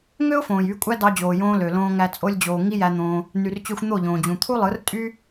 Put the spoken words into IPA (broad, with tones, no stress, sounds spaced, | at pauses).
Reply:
ŋ ø˦ ʊ̯ f õː˨ j y˧ kʷʼ æ˦ d ɑ˧ d͡ʑ oː˨ j õː˧ l ø˨ l õː˧ ŋ æ˧ t͡sʼ o˧ lʲ d͡ʑ oː˨ ŋ i˦ j æ˧ n̪ õː˧ | n y˨ r t͡ɕ ø˧ xʷ n̪ o˦˨ ʎ õː˨ d͡ʑ ũ˨ t̪ʰ u˦ lˠ ɯ˨˦ r tʼ y˦